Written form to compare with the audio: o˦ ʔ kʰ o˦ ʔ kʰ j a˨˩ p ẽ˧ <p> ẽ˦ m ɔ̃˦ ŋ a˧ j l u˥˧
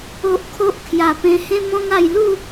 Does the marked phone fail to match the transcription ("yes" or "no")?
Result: yes